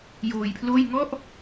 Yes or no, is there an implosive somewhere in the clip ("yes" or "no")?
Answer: no